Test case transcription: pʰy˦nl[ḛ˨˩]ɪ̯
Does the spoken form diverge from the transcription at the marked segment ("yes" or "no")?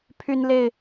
yes